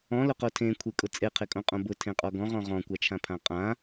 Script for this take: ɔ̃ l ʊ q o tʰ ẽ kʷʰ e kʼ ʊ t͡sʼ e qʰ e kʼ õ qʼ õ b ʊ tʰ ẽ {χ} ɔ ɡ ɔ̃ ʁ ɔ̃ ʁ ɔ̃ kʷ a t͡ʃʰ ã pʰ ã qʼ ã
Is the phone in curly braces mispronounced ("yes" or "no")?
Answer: yes